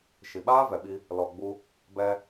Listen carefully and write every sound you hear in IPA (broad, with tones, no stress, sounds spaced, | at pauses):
ʃ i˨ ɓ aː˦ v ɛ˨ ɓ i˧ | l ɔ˨ ɡ͡b u˧ | b ɛ˧